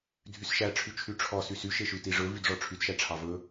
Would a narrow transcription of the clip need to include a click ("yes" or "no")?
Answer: no